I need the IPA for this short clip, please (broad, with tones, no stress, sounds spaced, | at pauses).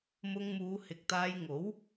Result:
m ʊ˧ ŋ m uː˨˧ h ɪ˨ k̚ t̪ aː˧ j ŋ o˨˥ w